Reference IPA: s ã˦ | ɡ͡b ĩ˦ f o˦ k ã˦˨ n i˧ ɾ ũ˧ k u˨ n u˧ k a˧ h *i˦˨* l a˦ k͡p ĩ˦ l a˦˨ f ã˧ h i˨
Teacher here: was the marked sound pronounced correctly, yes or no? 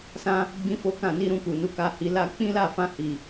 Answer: no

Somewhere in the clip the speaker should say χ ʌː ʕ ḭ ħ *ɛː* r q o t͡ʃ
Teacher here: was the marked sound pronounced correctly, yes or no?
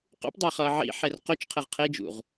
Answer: no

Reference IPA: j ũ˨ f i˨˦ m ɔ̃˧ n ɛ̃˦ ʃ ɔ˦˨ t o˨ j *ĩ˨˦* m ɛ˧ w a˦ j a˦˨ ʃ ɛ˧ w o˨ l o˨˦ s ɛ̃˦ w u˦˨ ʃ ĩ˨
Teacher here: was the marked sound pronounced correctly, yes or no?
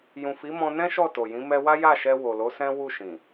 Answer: yes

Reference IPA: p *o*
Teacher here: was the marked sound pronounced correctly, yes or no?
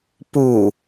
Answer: no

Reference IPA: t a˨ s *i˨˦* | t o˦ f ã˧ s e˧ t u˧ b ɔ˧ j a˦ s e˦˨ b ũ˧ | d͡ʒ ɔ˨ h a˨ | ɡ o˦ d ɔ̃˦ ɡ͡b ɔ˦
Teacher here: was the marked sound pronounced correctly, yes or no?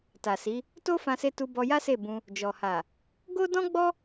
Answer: yes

